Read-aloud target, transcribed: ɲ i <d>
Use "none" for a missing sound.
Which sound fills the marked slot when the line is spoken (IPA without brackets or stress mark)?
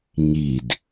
d